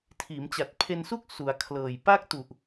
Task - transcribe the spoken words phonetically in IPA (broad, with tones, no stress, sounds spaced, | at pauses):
tʰ iː˩˦ m t͡ɕ a˨˩ t̚ pʰ e˧ n s u˥˩ k̚ s u˩˦ a̯ kʰ l ɤː˨˩ j p a˥˩ k̚ t u˨˩ ʔ